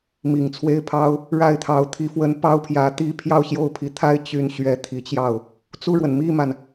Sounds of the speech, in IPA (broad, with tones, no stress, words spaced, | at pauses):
mi˨˩ŋt͡sʰwe˥˩ɪ̯pʰɑ˥ʊ̯ | ɻa˥˩ɪ̯t̪ʰɑ˧˥ʊ̯ t̪ʰi˧˥fwə˧˥n pɑ˥ʊ̯pʰjä˧˥t̪i˥ pʰjɑ˥˧ʊ̯ɕjo˥˩ʊ̯pʰi˧˥t̪ʰa˥ɪ̯ t͡ɕy˧˥n ɕɥɛ˧˥ t̪ʰi˨˩t͡ɕjɑ˥˩ʊ̯ | t͡su˥˩ɻwə˩n mi˥˩ma˩n